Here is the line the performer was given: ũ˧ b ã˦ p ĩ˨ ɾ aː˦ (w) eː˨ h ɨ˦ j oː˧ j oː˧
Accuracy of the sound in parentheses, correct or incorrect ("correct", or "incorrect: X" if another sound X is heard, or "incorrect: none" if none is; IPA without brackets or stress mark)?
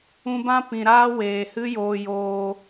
correct